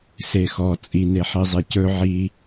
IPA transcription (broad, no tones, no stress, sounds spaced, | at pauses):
s e x ɔ t͡sʼ i n e ħ i zˤ e c ɵ ʕ i